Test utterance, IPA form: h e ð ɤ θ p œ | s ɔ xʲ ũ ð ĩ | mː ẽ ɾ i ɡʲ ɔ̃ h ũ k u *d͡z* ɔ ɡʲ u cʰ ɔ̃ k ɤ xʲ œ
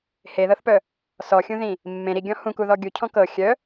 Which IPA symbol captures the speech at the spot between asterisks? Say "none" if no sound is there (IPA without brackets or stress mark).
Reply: ð